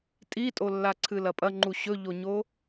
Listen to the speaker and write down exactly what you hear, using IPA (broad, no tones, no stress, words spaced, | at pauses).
tʼitʼolːa ǀʰɨlɐpʼɐ ŋ͡ǃuɕɵʎoɲo